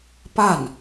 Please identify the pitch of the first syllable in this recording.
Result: falling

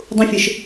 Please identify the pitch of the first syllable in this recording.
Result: high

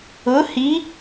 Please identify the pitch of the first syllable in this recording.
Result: rising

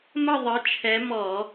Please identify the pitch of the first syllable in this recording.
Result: falling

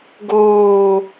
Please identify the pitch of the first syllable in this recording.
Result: low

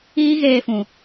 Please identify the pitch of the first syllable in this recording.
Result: high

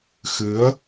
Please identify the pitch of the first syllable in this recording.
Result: rising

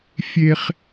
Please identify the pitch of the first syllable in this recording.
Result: high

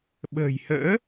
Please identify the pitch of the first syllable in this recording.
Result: low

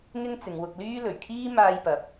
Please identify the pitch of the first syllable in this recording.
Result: high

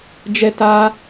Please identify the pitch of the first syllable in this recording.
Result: high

